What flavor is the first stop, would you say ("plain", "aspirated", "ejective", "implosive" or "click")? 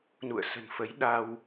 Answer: implosive